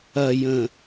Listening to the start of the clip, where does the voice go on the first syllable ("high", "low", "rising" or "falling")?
low